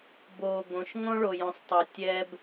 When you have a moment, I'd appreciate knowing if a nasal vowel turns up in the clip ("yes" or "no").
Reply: yes